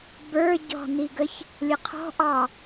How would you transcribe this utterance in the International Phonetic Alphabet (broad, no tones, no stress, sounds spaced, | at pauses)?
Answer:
b ə˞ ɟ ɔ̤ n i ɡ ə ç | lʲ ə qʰ ɔ̤ ʔ ɑ